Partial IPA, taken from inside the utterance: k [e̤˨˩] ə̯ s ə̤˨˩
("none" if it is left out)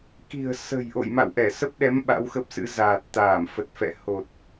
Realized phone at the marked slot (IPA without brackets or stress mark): i̤˨˩